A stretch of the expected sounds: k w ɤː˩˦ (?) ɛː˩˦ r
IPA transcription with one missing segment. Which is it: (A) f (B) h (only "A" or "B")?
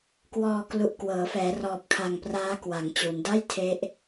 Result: A